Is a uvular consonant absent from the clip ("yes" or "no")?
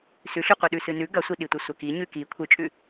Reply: no